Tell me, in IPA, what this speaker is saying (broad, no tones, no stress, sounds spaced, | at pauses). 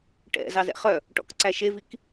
ʈ ɛ̰ z ɑ z ɛ̰ χ œ | ʈ ɔ̰ k ǀ æ ʃ e v i k